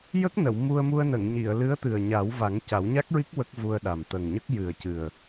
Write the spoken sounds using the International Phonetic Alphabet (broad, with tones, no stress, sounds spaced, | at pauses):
j ə˦˥ k̚ n ə˨˩˨ w m u˧ ə̯ m u˧ ə̯ n ə˨˩˨ ŋ ɲ i˨˩˨ ə̯ l ɨ˧˥ ə̯ t̪ ɨ˨˩ ə̯ ɲ a˨˩˦ w v a˨˩˦ ŋ c a˨˩˦ w ɲ a˦˥ k̚ ɹ i˦˥ k̚ w ə˦˥ k̚ v u˧ ə̯ ɗ a˨˩ m t̪ ə˨˩ ŋ ɲ ə˦˥ k̚ j ɨ˨˩ ə̯ c ɨ˨˩ ə̯